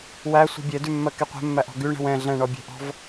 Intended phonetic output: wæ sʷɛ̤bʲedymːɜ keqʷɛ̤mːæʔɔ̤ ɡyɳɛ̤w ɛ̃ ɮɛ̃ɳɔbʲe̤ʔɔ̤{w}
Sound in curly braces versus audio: incorrect: v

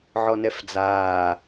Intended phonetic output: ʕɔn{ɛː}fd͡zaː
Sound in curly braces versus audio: incorrect: ɛ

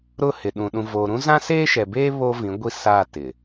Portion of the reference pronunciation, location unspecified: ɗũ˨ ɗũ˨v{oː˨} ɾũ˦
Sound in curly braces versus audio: correct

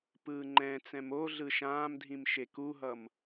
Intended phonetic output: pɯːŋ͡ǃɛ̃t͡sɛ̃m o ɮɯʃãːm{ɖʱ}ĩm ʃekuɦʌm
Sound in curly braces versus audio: incorrect: dʱ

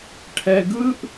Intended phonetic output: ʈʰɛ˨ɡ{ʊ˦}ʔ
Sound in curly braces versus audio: incorrect: ɯ˦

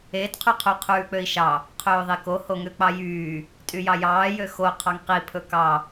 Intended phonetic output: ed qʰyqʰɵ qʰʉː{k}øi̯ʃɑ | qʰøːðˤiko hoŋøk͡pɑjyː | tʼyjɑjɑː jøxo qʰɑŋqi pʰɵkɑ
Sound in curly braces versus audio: incorrect: k͡p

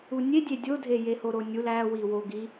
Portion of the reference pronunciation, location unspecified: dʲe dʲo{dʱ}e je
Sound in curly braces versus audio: correct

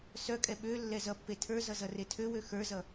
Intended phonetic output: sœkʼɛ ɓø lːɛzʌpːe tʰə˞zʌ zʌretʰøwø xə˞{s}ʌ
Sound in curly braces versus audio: incorrect: z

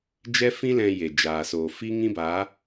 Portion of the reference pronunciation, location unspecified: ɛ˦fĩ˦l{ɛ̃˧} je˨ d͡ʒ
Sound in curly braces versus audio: correct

